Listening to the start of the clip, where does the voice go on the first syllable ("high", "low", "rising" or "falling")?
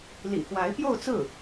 low